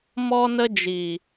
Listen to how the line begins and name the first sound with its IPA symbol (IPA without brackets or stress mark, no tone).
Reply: m